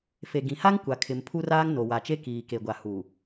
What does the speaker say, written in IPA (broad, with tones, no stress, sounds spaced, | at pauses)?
f e˨ ɡ ĩ˨ h a˦ ŋ kʷ a˨ kʰ ɪ˨ m pʰ u˦ r aː˦ ŋ n o˨ w a˨ t͡ʃ e˦ k iː˨ k e˨ ɡʷ a˨ h u˨